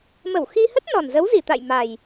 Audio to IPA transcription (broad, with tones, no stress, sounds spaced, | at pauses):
m ə˧˩ w x i˧ h ə˦˥ t̚ n ɔ˨˩ n z ə˨˦ w z i˧˩ t̪ a̰˧˨ j m a˨˩ j